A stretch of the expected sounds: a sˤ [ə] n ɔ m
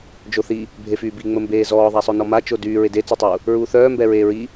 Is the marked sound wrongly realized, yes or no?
yes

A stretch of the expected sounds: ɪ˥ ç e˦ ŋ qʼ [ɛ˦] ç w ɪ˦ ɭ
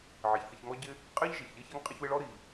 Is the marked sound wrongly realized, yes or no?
yes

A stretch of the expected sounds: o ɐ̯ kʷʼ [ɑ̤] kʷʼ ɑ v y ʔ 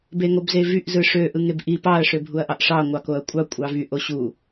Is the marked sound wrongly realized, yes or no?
yes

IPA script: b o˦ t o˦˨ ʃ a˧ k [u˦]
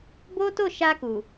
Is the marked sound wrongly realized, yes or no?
yes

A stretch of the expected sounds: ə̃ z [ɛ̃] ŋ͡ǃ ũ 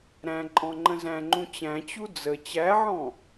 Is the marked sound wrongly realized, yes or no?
yes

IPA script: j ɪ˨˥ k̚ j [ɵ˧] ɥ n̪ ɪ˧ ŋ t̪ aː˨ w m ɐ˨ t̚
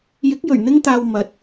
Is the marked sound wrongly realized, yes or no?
yes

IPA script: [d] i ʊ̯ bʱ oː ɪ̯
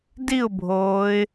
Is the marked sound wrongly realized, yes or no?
no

